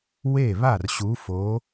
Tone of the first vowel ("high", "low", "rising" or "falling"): falling